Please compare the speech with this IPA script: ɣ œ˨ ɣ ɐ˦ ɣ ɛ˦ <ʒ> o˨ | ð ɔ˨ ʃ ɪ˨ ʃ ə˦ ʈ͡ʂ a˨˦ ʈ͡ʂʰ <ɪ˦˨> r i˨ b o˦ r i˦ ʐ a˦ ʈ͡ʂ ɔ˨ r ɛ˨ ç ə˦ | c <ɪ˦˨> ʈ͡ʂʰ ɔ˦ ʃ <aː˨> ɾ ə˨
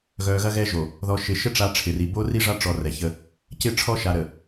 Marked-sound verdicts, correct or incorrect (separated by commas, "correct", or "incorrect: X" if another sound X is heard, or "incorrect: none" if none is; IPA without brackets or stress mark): correct, incorrect: ɪ˨, correct, incorrect: a˨